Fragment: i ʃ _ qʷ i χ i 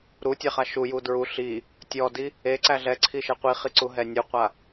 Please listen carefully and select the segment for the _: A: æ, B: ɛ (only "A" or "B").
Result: B